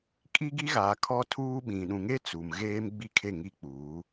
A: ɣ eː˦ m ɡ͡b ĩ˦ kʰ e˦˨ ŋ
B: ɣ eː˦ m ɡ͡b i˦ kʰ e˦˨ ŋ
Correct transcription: B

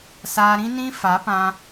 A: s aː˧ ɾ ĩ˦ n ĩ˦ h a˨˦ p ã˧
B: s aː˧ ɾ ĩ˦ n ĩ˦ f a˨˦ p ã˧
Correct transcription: B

